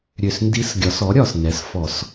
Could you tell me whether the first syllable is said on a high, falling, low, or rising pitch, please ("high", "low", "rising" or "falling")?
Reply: low